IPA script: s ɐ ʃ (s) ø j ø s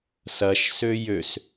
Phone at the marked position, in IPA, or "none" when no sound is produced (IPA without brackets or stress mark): s